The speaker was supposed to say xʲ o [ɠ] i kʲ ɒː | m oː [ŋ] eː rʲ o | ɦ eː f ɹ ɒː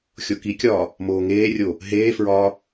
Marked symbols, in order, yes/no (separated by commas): no, yes